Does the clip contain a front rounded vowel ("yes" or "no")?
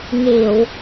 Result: no